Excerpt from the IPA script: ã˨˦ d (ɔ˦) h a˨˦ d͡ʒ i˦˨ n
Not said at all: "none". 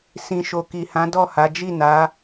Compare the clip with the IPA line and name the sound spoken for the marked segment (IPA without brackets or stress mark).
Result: ɔ˦˨